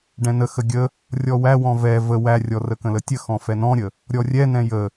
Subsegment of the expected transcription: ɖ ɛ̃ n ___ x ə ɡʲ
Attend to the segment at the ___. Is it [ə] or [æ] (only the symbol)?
ə